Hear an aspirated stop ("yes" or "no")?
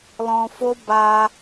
no